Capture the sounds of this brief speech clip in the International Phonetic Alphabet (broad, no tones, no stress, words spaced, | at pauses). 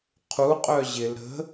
qʰu qʼœʑɪl ɾə̤